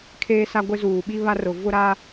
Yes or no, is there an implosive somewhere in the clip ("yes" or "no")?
yes